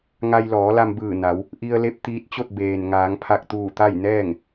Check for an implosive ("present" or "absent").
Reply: absent